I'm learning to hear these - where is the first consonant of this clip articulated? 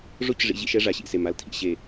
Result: retroflex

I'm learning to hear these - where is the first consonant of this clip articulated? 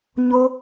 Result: palate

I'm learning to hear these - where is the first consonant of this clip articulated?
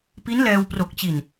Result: lips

